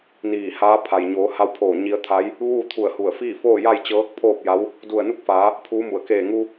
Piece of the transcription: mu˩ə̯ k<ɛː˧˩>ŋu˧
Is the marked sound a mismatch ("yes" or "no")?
yes